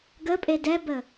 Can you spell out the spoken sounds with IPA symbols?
ɡ ə pʼ e d ɛ b ə

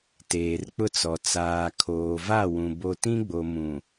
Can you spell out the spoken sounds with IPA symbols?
t eː˨ r k͡p ʊ˦ t͡s ɔ˨ t͡s aː˨ kʰ oː˨ v a˦˨ w ũ˨ b o˦ t ĩ˦ ɡ͡b o˨ m ũ˨

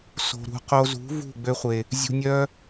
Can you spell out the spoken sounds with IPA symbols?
s o̤˧ ɾ ṳ˨˦ q o˧ z ṳ˨˦ v ṳ˦˨ ɡ͡b ø˧ χʷ e˨ | zʲ ṳ˧ nʲ œ˦

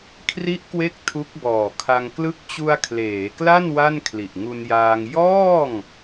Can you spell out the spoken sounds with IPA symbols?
kʰ r i˦˥ ʔ k w e˦˥ k̚ tʰ u˦˥ k̚ b ɔː˨˩ kʰ a˧ ŋ k l ɯ˦˥ k̚ t͡ɕ u˧ a̯ kʰ l eː˩˦ k l a˥˩ n w a˥˩ n kʰ l i˨˩ ʔ ŋ u˧ n j aː˧ ŋ j ɔː˥˩ ŋ

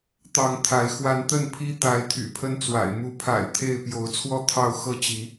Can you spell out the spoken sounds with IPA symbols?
t̪ ɑ˨˦ ŋ t̪ʰ a˨˦ ɪ̯ x w a˨˦ n t̪ ə˥˨ n pʰ i˦ t̪ a˨˦ ɪ̯ t̪ʰ y̰˨˩ pʰ ə˦ n t͡s w a̰˨˩ ɪ̯ m u˨˦ pʰ a̰˨˩ ɪ̯ t̪ʰ e˥˨ ɪ̯ p j o˨˦ ʊ̯ t͡sʰ w ɔ˥˨ t̪ʰ ɑ˥˨ ʊ̯ x ɤ˥˨ t͡ɕ i˨˦

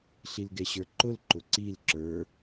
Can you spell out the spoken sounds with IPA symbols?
ɬ i l ɡ ɛ ɕ ə˞ ǃ ʊ l ǃ ʊ ǀ i l ǁ ə˞

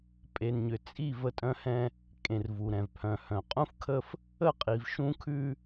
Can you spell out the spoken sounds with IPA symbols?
pʼ e˨ n ɲ ʏ˨ t͡sʼ i˦˨ v ə˦ tʼ œ̃˦ h ɛ̃˦ | kʼ ẽ˨ r v u˨ ɾ ɛ̃˨ v pʰ œ̃˨ h œ̃˨ qʼ ũ˦ f kʰ ə˦ f | ə˦˨ qʼ i˨ v ʃ ũ˦ kʰ ʉ˦

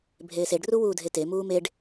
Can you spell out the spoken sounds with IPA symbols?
bʱ eː s e ɖ r u w uː dʱ e t e m uː m e ɖ

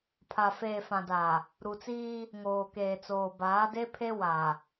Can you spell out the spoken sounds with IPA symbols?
pʰ a˨ f eː˨ f ã˨ d a˨ | ɾ u˨ t͡s iː˦ | ŋ oː˨ k eː˨ t͡s oː˨ b aː˨˦ d e˦ pʰ e˦ w a˨

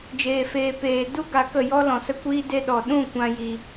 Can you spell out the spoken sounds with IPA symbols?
d͡ʒ eː˨ f eː˨ p eː˨ d u˦ ɡ a˧ k ə˦˨ j ɔ˦ l ɔ̃˨ s ə˦ kʷ iː˦ d e˧ ɗ ɔ˨ ɗ ũ˦˨ kʷ ã˦ j i˧

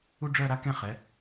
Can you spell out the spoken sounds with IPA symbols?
u˥ ɖ͡ʐ ɜ˥˧ ɾ a˥ k ɛ̃˥˧ χ ɛ˨˥

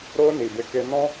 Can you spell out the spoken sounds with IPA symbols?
ɾ o˧ n i˨ b e˧ k e˧ n ɔ̃˧

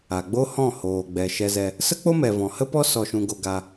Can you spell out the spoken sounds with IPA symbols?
a˨ ɡ͡b o˦ h ɔ̃˦˨ h oː˨ ɡ͡b ɛ˨ ʃ ɛ˧ z ɛ˧ | s ə˦ k͡p o˦ m ɛ˨ v ɔ̃˨ h ə˦ p ɔ˦ s ɔ˧ ʃ ũ˧ ɡ o˧ ɡ a˧

